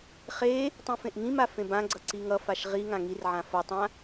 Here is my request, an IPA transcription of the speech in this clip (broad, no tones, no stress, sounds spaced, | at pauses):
χ e | tˤ ĩ f ẽ ʔ ŋ ĩ m a f ẽ b ã ɡ͡ǀ ʌ ǀ i ŋ ʌ f a ʃ ʁ i ŋ ã ŋ i r ʕ ã f ʌ tˤ ã